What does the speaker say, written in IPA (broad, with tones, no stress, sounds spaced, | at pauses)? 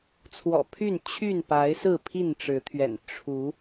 t͡sʰ w ɔ̰˨˩ pʰ y˥˨ n t͡ɕʰ y˥˨ n p a˨˦ ɪ̯ s ɹ̩˥˨ pʰ i˥˨ n ʈ͡ʂ ɻ̩˨˦ t̪ʰ ɥ ɛ̰˨˩ n ʈ͡ʂʰ u˨˦